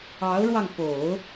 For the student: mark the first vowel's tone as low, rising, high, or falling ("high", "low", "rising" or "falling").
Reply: rising